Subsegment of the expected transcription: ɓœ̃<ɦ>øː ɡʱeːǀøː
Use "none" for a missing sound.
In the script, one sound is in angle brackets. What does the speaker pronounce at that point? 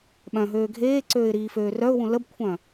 ɦ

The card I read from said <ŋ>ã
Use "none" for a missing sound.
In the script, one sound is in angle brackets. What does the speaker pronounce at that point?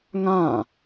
ŋ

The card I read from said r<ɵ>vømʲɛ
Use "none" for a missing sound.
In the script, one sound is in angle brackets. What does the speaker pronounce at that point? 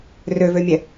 ø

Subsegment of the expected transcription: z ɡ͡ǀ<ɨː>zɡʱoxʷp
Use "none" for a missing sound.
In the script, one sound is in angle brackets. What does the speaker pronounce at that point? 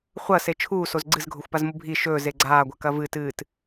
ɨ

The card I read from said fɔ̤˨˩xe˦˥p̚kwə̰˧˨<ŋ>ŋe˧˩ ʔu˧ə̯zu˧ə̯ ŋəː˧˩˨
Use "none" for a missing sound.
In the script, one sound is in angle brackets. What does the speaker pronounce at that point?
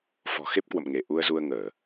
m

